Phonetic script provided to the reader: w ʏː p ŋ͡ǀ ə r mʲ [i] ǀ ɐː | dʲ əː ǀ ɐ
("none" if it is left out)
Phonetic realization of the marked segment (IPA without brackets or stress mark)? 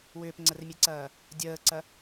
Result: e